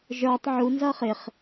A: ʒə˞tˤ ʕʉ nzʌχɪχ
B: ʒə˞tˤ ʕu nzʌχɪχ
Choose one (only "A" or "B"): B